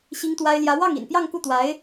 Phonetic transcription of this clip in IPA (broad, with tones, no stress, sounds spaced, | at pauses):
ɕ i˥ ŋ t̪ w a˥ ɪ̯ l j ä˧˥ w ɑ˥˩ ŋ ḭ˨˩ n p j ɑ˥˧ ŋ k u˥˩ t̪ w a˧˥ ɪ̯